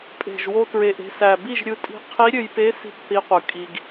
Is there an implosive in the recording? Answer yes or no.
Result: no